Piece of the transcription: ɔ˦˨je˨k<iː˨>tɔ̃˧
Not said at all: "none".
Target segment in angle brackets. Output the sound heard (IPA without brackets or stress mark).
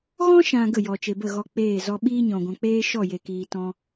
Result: iː˨